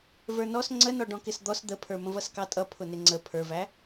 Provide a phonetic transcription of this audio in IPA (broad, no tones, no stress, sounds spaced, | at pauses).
v ə˞ n ɔ s ŋ͡ǀ ə n ɔ ɖ ɔ̃ k ɪ s d̪ ɔ s d̪ ə pʰ ə˞ m ə̃ v ʌ s k ɑ tʼ ʌ pʰ ʊ n ɪ ŋ͡ǀ ə pʰ ə˞ v æ